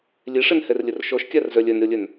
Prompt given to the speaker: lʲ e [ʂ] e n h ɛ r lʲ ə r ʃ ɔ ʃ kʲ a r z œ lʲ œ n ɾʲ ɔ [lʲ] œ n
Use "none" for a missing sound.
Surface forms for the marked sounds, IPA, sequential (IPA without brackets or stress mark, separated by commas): ʂ, lʲ